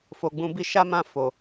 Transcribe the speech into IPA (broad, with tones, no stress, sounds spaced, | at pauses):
f o˨ ɡ͡b ũ˧ b i˦ ʃ a˦ m ã˦˨ f o˨